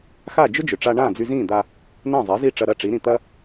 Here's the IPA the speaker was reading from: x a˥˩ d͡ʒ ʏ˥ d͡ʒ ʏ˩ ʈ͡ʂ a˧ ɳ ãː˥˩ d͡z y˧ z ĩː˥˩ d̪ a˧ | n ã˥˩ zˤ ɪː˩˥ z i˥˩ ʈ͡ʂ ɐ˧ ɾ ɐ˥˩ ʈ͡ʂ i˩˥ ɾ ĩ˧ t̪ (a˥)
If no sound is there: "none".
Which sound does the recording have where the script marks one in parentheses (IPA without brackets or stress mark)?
ɐ˥